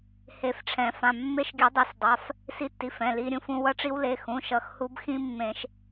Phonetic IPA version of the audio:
he˧fʈ͡ʂʰɛ̃˨˩˦fã˩˧˩ mːe˦˥ʃɡʲɯ˨˩˦dˤe˨˩˦sdˤa˩˧˩f | si˧tːi˩˧˩f ɛ̃˩˧˩li˧ ɾʲũ˧fũ˧ wʌ˦˥ʈ͡ʂi˦˥w le˩˧˩xũ˩˧˩ ʃʌ˧xhu˦˥bxĩ˦˥ mːẽ˨˩˦ʃ

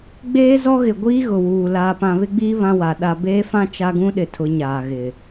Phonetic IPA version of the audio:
ɡ͡beː˦zɔ˦ɣɪ˨ ɡʷiː˦ɣʊ˨wuː˨ laː˨pã˨βɪ˦ɡ͡biː˦ βã˦wa˨ ɗa˨beː˦fã˦ t͡ʃa˦ɡũ˦ɗɪ˨tʰʊ˨˦ ɲaː˨ɣɪ˨

